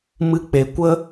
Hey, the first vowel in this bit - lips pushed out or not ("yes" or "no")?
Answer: no